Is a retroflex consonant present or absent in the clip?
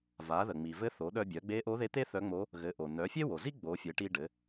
present